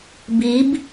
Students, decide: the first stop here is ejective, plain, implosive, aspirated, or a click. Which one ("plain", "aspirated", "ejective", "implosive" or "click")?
plain